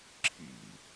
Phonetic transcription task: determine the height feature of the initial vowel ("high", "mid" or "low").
high